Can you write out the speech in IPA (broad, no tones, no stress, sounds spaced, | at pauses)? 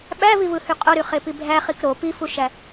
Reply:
ɓ æ v i v ɯ h y qʼ o ɾ y χ e p i bʱ æ χ i k ɾ o p i f u ʃ æ